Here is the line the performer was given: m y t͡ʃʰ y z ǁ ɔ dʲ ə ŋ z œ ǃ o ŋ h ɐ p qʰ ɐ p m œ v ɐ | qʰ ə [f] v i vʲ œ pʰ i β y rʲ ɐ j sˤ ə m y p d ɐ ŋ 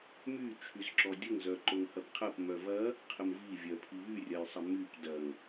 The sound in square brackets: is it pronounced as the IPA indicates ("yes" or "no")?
no